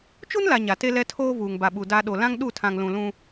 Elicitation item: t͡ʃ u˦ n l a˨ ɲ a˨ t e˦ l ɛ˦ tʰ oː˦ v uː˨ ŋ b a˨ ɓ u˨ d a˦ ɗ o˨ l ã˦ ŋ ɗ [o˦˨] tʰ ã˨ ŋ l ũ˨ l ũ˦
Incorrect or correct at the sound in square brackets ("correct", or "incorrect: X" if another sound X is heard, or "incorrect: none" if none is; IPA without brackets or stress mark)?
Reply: incorrect: u˦˨